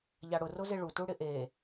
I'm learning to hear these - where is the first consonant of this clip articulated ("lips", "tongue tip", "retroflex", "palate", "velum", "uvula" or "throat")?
palate